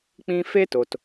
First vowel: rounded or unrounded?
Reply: unrounded